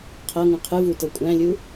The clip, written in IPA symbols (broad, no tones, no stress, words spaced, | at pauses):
qʰɤŋũ qʰɨvu tɤkʷʼæ̃lʲu